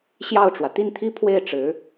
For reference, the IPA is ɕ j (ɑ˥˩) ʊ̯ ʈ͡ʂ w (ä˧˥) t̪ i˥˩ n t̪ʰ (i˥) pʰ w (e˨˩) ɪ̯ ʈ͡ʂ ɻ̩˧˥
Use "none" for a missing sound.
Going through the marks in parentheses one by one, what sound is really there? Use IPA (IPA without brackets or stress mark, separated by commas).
ɑ˥˩, ä˩, i˥, e˥˩